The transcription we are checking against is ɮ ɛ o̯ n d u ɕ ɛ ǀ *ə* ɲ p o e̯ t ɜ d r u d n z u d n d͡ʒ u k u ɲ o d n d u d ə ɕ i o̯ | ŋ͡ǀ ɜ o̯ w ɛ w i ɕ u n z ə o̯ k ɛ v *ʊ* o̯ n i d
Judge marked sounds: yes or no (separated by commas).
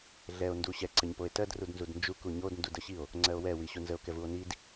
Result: yes, no